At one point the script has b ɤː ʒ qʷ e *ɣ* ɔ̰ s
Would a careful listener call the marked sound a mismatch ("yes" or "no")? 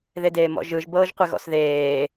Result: no